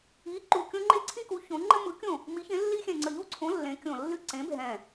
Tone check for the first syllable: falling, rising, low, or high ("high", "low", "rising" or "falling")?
rising